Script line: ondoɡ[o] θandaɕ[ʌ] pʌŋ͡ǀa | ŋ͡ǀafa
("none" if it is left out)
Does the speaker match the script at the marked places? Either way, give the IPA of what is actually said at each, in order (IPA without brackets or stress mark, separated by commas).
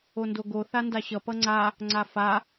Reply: o, ʌ